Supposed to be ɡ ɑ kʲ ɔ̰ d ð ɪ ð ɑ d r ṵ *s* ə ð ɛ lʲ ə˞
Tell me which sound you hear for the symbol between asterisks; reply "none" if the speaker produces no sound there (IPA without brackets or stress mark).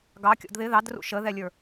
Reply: ʃ